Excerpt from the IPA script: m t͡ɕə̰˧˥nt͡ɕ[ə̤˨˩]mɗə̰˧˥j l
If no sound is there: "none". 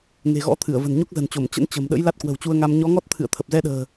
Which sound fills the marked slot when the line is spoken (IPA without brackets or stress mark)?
ə̤˨˩